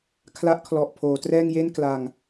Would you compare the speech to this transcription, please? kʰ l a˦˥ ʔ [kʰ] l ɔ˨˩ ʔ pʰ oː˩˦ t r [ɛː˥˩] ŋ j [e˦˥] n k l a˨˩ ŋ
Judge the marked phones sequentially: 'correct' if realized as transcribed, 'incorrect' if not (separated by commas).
correct, correct, incorrect